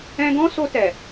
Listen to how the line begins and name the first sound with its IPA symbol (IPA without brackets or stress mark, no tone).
ɛ̃